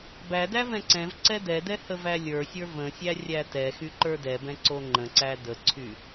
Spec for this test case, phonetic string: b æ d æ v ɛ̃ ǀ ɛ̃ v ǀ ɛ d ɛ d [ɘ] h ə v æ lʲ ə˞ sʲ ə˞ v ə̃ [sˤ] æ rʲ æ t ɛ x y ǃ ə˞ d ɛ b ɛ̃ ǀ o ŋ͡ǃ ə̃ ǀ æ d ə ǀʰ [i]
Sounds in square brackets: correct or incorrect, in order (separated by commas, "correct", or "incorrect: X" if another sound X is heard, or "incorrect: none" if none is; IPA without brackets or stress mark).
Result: incorrect: ɛ, incorrect: sʲ, incorrect: y